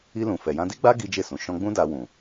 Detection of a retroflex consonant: absent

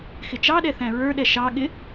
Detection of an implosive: present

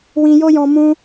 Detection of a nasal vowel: present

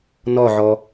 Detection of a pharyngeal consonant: present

